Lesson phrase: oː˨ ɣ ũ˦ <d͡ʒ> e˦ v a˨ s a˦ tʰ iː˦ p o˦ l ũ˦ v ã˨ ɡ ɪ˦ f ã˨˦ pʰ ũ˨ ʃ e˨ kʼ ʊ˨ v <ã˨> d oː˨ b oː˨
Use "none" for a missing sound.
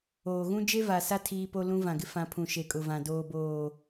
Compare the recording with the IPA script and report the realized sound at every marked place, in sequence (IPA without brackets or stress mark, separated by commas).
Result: d͡ʒ, ã˨